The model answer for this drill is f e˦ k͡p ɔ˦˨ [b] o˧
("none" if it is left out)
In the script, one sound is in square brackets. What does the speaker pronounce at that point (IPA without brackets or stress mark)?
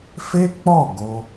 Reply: ɡ